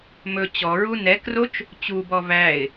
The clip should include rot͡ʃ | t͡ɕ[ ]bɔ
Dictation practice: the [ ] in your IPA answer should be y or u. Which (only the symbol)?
u